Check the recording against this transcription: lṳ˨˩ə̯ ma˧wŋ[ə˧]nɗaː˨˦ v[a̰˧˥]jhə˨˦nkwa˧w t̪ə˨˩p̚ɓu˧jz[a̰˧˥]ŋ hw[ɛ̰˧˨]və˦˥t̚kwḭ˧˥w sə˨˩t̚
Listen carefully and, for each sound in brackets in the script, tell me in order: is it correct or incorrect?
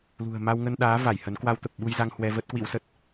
correct, incorrect: a˧˩, incorrect: a˧, incorrect: ɛ˧

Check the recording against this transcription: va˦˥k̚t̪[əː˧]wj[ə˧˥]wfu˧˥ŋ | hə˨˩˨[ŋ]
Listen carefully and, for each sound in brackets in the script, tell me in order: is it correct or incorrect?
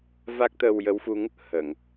correct, correct, correct

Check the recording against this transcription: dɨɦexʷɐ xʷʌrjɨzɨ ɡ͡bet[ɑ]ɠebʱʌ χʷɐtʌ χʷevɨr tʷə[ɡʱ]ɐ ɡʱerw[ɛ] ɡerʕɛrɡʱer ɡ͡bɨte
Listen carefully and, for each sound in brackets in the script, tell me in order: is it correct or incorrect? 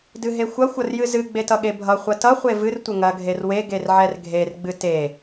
incorrect: ʌ, incorrect: ŋ, incorrect: e

